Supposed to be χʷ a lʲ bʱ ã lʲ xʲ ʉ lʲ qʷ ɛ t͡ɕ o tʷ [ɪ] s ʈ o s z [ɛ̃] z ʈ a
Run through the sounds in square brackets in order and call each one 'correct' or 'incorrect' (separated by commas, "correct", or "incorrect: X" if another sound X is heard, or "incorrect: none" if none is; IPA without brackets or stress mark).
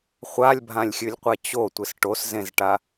correct, incorrect: ẽ